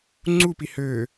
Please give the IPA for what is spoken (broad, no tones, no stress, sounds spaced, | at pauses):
ŋ͡ǀ u p i h ø